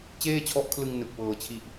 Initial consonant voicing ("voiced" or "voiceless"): voiceless